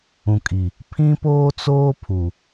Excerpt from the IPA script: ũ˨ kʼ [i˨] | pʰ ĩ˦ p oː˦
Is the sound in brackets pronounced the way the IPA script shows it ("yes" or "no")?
yes